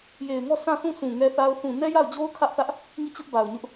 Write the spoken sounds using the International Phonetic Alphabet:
j e˨ ɪ̯ ŋ ɔ˦˨ sʰ ã˦˨ sʰ ũ˦˨ s ũ˨ ŋ ɛ˦ θ a˦ ʊ̯ θ ũ˨ n ɛ˦ j a˦˨ ʊ̯ d͡ʑ o˦ ʊ̯ kʰ ä˦ ʔ θ ä˦ ʔ | ŋ i˦˨ t͡ɕ ʊ˦ ʔ b a˨ ʊ̯ ɲ ʊ˦ ʔ

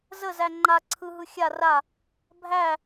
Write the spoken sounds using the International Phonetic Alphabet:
z ə z æ ŋ͡ǃ a ǀʰ ɯ ɦ ɯ xʲ a r a | bʱ æ

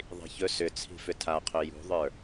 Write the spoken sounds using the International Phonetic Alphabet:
ðˤ i̤ ç ɵ s ʏ t͡sʰ i̤ f ʏ tʰ a qʰ ɵ j ṳ ðˤ ə˞

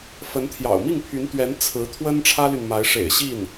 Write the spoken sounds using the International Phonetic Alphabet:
f ə˧˥ n t̪ʰ j ɑ̰˨˩ ʊ̯ m i˥˩ ŋ pʰ y˧˥ n t̪ ɥ ɛ˧˥ n t͡sʰ ɹ̩˧˥ t̪ʰ w ə˥ n ʈ͡ʂʰ ä˥ l y˨ n m a˧˥ ɪ̯ ʂ ḛ˨˩ ɪ̯ ɕ i˥˩ n

